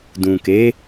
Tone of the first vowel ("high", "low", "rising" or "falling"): low